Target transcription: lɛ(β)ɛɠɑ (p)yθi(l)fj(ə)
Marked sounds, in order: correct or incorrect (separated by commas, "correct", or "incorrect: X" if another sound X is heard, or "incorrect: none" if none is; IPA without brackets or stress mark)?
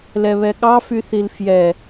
correct, incorrect: f, correct, incorrect: ɛ